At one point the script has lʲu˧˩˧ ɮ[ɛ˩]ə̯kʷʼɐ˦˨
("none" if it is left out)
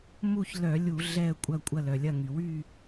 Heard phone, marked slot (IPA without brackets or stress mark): ɛ˦˨